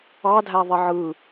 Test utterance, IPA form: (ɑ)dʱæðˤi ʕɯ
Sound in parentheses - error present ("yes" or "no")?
no